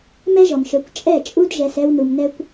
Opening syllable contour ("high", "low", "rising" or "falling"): high